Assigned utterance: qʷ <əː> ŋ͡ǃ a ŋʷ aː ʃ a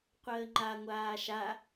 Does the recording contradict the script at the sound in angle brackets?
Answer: no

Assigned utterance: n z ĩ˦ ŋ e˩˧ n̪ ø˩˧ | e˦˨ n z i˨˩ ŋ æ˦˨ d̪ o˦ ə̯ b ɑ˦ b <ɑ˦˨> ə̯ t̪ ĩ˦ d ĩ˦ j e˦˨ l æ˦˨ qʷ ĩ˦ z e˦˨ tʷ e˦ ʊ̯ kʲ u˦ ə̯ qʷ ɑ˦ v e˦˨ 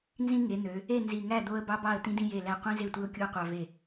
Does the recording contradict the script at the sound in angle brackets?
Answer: no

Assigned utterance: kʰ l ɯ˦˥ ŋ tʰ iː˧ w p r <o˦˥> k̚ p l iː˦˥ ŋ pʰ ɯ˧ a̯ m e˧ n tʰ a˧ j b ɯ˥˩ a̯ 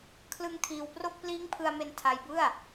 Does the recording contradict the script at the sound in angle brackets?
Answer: yes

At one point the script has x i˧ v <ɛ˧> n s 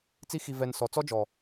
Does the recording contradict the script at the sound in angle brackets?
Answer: no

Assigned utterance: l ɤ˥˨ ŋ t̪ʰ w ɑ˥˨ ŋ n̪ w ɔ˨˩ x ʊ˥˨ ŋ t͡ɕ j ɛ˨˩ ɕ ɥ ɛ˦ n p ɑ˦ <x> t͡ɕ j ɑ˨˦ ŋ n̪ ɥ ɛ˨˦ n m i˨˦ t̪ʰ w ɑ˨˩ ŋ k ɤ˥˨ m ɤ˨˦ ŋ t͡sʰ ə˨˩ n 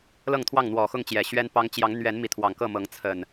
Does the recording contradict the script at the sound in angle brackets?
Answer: yes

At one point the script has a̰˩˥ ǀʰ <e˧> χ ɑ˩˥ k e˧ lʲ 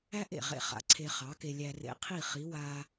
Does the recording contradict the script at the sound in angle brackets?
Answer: no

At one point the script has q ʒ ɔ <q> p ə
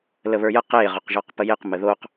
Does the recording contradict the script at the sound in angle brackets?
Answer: no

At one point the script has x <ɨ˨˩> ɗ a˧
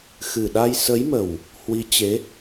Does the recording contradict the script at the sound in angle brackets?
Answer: no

